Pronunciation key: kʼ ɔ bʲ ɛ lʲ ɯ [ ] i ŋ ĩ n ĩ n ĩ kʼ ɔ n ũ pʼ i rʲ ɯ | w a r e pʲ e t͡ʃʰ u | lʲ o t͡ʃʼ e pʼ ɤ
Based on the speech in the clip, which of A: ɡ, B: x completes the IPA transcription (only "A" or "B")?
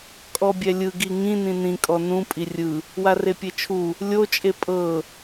A